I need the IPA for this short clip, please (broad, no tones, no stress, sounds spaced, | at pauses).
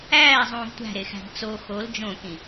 æː zˤ ũː v tʷ æ̤ ɾ e x æ̤ ɡ t͡s o x o l d͡ʒ õ k ĩ